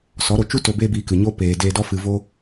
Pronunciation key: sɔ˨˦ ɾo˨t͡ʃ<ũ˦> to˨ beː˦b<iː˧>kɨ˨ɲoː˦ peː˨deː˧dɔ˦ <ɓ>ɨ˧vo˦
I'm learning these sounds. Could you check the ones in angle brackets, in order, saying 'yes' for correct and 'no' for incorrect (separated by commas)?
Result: no, yes, no